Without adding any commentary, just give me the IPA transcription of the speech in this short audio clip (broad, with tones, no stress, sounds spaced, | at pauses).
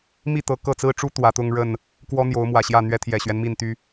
m i˥˨ t̪ ɤ˨˩ k ɤ˥˨ t͡s ɹ̩˦ ʈ͡ʂ u˦ t̪ w ä˨˦ t̪ ʊ˦ ŋ ɻ ə˥˨ n | k w ɔ˦ n̪ j o˨˦ ʊ̯ m w ä˨˩ ɕ j ä˥˨ n̪ ɥ ɛ˦ t̪ʰ j ɛ˨˩ ɕ ɥ ɛ˦ n m i˥˨ n t̪ y˦